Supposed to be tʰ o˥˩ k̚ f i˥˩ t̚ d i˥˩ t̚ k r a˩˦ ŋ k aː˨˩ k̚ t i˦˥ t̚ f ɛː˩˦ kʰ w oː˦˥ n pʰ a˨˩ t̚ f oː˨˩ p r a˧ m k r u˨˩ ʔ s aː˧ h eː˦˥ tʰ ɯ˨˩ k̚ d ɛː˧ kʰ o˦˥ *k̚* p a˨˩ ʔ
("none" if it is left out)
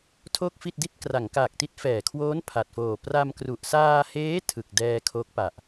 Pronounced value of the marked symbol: k̚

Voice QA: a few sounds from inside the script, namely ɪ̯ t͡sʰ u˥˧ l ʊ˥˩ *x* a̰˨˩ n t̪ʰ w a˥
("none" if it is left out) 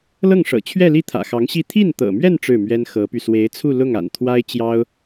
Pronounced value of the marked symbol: ŋ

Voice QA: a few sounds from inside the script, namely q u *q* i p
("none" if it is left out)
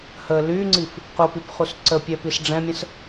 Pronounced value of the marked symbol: p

